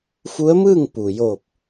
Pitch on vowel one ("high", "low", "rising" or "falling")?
rising